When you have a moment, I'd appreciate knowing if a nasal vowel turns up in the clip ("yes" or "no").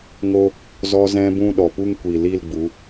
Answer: yes